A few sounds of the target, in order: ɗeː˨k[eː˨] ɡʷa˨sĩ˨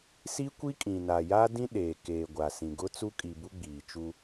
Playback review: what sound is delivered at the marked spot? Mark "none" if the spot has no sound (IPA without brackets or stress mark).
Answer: eː˨